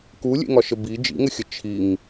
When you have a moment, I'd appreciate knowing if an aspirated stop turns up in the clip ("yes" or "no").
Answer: yes